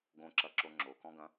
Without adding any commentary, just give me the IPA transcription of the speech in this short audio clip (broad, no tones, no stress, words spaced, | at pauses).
ɡõǁɐǁo ŋ͡ǁokɔ̃ɡɐ̃